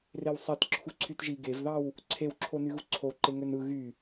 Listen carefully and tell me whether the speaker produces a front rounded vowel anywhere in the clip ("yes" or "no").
yes